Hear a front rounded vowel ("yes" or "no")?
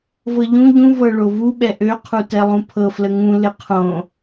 yes